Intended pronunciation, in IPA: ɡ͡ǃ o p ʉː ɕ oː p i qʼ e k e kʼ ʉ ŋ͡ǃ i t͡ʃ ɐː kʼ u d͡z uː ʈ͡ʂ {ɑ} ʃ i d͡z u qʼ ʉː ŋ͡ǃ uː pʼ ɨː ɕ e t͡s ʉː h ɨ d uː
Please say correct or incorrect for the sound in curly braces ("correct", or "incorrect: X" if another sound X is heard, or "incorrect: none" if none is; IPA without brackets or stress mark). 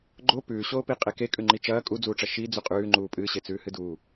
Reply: incorrect: ɐ